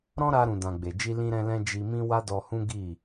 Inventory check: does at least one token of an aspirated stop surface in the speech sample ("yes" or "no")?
no